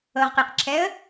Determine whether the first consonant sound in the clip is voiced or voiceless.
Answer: voiced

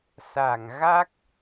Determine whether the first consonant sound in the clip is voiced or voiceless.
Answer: voiceless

